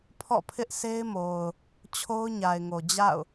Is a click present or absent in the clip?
absent